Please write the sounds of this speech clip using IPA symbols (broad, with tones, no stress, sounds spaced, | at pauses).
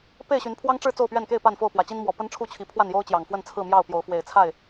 p e˥˨ ɪ̯ ɕ y˨˦ n pʰ w ɑ˦ ŋ ʈ͡ʂ ɻ̩˥˨ t͡s o˥˨ ʊ̯ p ɥ ɛ˥˨ n k e˥˨ ɪ̯ p a˥˨ n f o˥˨ ʊ̯ p w ä˨˩ t͡ɕ i˦ n m w ɔ˨˩ p ə˦ n ʈ͡ʂʰ u˥˨ t͡ɕʰ i˨˦ pʰ w a˥˨ n j o˦ ʊ̯ t͡ɕ j ɑ˨˩ ŋ f w ə˥˨ n t͡sʰ ɹ̩˥˨ m j ɑ˥˨ ʊ̯ p j o˨˦ ʊ̯ f w e˨˩ ɪ̯ t͡sʰ a˥˨ ɪ̯